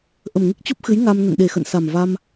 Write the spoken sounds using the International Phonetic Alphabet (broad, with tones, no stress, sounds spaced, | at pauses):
ʔ ə˨˩ m ŋ ɨ˦˥ k̚ t͡ɕ u˦˥ p̚ x ɨ˨˦ j ŋ a˧ m n ə̰˧˨ n ɗ e˨˩ x ə̰˧˨ n s a˨˩ m v a˧ m